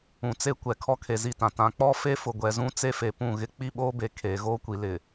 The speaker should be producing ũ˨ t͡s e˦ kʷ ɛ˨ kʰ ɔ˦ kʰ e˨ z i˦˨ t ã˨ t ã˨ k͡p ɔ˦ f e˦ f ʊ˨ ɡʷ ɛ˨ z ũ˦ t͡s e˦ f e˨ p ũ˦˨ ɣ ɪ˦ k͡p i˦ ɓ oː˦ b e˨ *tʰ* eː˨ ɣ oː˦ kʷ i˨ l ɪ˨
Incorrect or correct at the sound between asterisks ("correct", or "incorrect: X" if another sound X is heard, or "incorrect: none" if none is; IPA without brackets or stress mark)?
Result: incorrect: kʰ